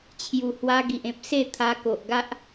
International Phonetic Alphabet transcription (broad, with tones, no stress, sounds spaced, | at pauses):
t͡ɕʰ j u˨˩ h w a˧ ɡ i˨ ʔ ẽ˦ p̚ s e˥˧ t̪ʰ a˧ k o˨ ʔ ɡ a˦ ʔ